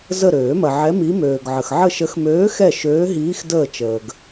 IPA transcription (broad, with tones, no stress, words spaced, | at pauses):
zə˦˨ɾøː˨˩˦mɐ˨ʕɛ˧˥ mi˧˥møː˨ɡʕə˨x ʕə˦˨ʃə˧˥xmøː˧˥xɛ˦˨ ʃøː˧˥ɦiː˧˥xdəː˦˨t͡ʃəː˨ɡ